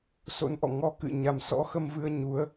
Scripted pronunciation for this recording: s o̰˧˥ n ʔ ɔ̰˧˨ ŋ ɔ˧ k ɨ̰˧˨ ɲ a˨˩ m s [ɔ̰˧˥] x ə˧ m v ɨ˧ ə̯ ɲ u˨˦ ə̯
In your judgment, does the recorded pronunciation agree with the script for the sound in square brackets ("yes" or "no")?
yes